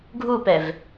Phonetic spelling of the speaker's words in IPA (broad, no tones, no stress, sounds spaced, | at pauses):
ɡʱ u p ɛ v